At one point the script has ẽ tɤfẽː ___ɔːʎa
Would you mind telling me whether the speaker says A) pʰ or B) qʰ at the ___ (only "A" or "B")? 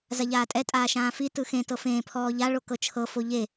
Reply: A